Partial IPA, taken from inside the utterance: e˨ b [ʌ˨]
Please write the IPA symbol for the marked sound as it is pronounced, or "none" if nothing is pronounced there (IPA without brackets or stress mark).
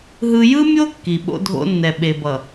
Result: ʌ˨